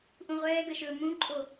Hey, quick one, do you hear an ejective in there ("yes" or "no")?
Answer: yes